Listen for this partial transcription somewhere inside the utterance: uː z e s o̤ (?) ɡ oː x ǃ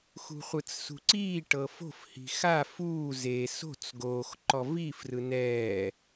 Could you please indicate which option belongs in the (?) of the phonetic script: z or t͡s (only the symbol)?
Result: t͡s